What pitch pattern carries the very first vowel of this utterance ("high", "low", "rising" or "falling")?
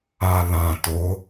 low